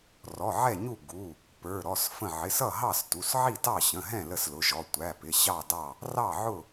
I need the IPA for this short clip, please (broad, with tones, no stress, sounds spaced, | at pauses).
r ɔ˩˧˩ ʕ ɛ˥˨ ɲ u˥˨ ɡ u˩˧˩ | p ə˞˩˧˩ ɾ ɔ˩˧˩ s f ə̃˥˨ ʕ ɪ˩˧˩ s ʌ˥˨ ɦ ɑ˥˨ s t u˩˧˩ s ʕ i˥˨ t ɑ˥˨ ɕ ə̃˩˧˩ ɦ ɛ̃˥˨ l ə˥˨ s l ʊ˩˧˩ ʒ ɔ˩˧˩ tʷ æ˩˧˩ p ɪ˩˧˩ ɕ ɑ˥˨ d ɑ˥˨ | r ɑ˥˨ ʕ ʊ˥˨